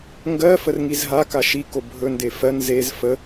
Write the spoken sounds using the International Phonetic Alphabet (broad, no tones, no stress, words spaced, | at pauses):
ŋɡɜ fərŋizɦa kaʃi kobʱɵ ndefɜn zez fə